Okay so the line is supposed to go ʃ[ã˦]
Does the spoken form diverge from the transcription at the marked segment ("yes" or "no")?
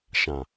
yes